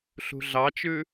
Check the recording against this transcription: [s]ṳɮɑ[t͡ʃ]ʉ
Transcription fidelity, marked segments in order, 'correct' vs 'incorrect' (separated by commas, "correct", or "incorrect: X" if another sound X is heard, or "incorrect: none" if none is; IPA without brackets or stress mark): incorrect: ɬ, correct